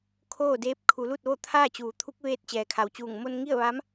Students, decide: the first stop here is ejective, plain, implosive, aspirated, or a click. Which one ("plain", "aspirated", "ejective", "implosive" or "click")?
aspirated